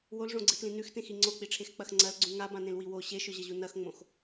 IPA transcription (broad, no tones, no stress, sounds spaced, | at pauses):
w o l ʐ õ ɡ͡ǀ ɨ t l ĩ n ʉ x t ẽ x i ŋ͡ǀ o k͡p i ʈ͡ʂʰ e x k͡p ɐ x ŋ͡ǀ ɐ l ɡ͡ǀ ũ ŋ a b ã n ẽ l w i w o ɕ e ʃ ɵ ʑ ɐ ʑ u n ɐ x ŋ͡m õ x